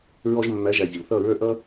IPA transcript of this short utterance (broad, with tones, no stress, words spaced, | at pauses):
ɹɔ˧ʒmːæ˨˦ʒæ˨ vʲə˨lθʌ˦˨ɹə˞˦ ʔʌ˦